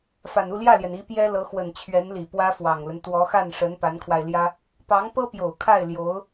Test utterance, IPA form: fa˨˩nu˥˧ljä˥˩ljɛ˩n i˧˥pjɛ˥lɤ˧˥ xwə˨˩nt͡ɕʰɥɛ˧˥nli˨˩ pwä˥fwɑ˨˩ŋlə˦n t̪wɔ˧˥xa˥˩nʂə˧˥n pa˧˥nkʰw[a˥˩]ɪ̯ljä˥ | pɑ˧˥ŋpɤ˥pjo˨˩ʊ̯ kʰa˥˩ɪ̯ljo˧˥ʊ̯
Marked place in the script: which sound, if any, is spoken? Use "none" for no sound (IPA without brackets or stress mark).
a˧